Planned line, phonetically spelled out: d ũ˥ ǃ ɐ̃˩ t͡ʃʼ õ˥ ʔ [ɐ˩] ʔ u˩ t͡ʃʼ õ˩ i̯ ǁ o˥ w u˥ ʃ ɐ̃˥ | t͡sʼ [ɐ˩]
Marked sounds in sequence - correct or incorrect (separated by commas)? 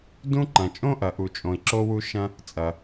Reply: correct, correct